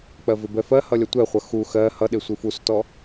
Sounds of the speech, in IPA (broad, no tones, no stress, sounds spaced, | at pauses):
k͡p ɜ v ɪ b ɛ f ɜ h ʌ lʲ ʌ tʷ ɛ χʷ ʌ x u x ɜ h ʌ ɗ ɪ sʷ i f u s t ɔ